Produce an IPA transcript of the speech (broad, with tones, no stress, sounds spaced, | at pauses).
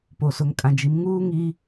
p o˨ s ʊ˨ ŋ kʼ ã˨ d͡ʒ i˨˦ m ŋ uː˦ ŋ iː˦